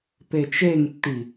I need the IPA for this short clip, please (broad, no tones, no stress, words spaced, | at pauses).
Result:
pet͡ʃeŋtːi